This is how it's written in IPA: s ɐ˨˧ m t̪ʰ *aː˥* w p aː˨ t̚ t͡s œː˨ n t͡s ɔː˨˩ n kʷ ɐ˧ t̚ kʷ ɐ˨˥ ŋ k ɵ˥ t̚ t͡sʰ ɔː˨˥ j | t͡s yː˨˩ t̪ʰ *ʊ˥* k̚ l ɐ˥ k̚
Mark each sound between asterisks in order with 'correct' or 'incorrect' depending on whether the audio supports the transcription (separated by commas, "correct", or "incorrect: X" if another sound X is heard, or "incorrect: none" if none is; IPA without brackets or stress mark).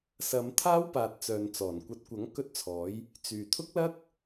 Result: correct, correct